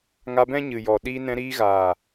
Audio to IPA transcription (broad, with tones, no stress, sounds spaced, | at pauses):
ŋ a˧ b ɛ̃˦ ɲ ɨ˨ j ɔ˨ ɗ i˧ n ɛ̃˧ ɾ iː˧ ɣ aː˨